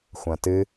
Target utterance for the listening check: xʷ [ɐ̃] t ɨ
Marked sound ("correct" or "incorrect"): correct